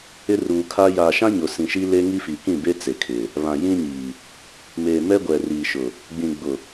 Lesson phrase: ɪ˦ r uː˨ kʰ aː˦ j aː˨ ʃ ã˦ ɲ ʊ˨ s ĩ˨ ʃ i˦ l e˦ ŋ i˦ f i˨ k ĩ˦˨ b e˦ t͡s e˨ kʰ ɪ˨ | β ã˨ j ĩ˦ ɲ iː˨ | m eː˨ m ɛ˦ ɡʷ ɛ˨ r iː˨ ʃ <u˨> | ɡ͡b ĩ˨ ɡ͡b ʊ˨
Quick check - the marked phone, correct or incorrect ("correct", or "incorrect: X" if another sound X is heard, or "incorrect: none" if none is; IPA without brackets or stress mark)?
incorrect: ʊ˨